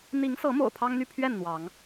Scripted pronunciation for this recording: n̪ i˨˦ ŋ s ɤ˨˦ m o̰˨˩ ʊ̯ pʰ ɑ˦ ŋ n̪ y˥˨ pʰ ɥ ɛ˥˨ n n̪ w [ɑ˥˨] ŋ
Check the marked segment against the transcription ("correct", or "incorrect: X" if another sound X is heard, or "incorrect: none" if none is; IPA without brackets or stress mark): incorrect: ɑ˨˦